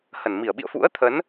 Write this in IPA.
hə˧˩nmi˧˩ə̯ ɓḭ˧˨ə̯fṵ˧˥ə̯t̪ʰə˨˦n

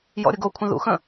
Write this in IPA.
jɔ̰ɾʲəɡokʷʰə̃ ðṵxə̃

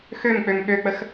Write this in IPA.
xømk͡pøm ɠøk͡pəx

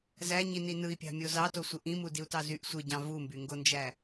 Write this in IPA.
zæɲini nɯi̯pʲɑ̤mʲo zɑtosʷɯ ʔĩmudiu̯tɑ zyʔ sʷɯɟɑ̃ vumbyŋɡond͡ʒæ

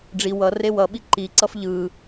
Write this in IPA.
ɖ͡ʐi wʌ rewʌɓi ǃiǀʌf ʎɯ

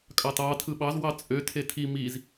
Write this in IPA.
kʼɑtɑ tʰɯɓɑz wɑt͡sʼø tʰetʰi miz

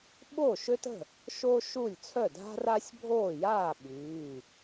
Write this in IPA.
ɓo˥˨ʃø˥tə̤˥˨ | ʃo˥ʃu˥˨lʲ t͡sʰœ˥˨dʱa̤˥ra˥sʲbʱoː˥˨ jaː˥˨ ɓyː˩˧˩

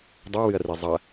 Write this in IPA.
dˤuwɨɐ̯ri zˤɐ

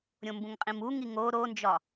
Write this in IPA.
ɾʲõmbũŋqʼĩmu ŋiŋo ɾond͡ʒɒ

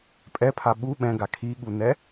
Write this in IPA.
pʼɛpʰa ɓu ɓɛ̃ɡa kʰiɠunɛ

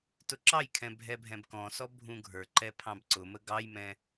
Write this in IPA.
tʊǁɑjkʰɛ̃ bʱɛbʱɛ̃bkɔ̃sɔ bʱũɡʱə˞ǃɛ pʰɑ̃bǀʊmə ɡɑjmɛ̃

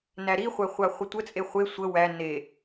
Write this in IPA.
næɾiχʷæχʷa χʷətʷət͡sʼe χʷe sʷə wæ ne

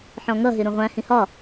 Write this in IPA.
ħɔ̃ŋʌɦɪ ɾũʁʷæ̃hĩ hɒ

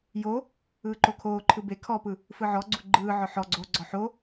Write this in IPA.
jo | ɯːǃokʰoːǃʰɯ be kʰɔpɯ | fɯʕɔɡ͡ǀu ɡ͡ǃɯː ʕɔħɔɡ͡ǀoːɡ͡ǀɔ ħo

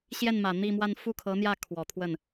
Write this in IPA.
ɕjɛ˥˩nmä˨˩ n̪i˥˧mwa˥˧n fu˥˩kʰɤ˧˥n̪jä˥˩ kʰwɔ˨˩t̪ʰwə˥˩n

